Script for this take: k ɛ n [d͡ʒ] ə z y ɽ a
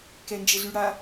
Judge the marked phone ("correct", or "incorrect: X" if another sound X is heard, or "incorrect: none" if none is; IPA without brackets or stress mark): correct